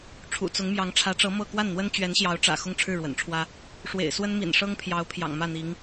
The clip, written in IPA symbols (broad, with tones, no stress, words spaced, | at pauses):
ʈ͡ʂʰṵ˨˩t͡sʊ˧˥ŋmjɑ˧˥ŋ ʈ͡ʂʰä˧˥ʈ͡ʂɤ˧˥ mɤ˥˧ kwa˥˩nn̪wə˥n t͡ɕɥɛ˧˥nɕjɑ˧˥ʊ̯ʈ͡ʂä̰˨˩ xʊ˥˧ŋʈ͡ʂʰɻ̩˥˩ɻwə̰˨˩nʈ͡ʂʰwä˥ | ʂwḛ˨˩ɪ̯ swə˥nmḭ˨˩nʂɤ˥ŋpʰjɑ˧˥ʊ̯ pʰjɑ̰˨˩ŋmä˥˩n̪i˧˥ŋ